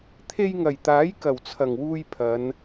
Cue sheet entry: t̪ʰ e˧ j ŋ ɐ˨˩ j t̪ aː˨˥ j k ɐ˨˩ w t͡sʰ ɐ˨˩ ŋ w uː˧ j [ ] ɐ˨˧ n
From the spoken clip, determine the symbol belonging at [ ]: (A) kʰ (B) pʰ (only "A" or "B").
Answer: B